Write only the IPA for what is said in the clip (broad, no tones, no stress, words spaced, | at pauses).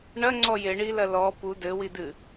ɳɐŋ͡ǀɔ jeɳilɐ lɔ pu dɘwidɨ